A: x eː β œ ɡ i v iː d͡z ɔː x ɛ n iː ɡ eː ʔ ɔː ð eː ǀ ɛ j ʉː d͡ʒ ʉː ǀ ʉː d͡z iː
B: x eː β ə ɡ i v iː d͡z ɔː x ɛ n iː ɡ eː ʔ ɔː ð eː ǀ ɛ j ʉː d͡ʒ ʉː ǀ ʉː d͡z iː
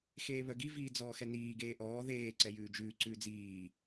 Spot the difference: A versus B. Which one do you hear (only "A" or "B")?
A